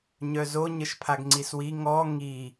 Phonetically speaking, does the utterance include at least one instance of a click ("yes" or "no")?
yes